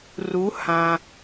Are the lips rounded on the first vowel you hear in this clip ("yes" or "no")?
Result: yes